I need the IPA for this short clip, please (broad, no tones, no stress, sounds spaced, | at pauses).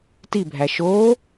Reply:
t i bʱ æ ʃ oː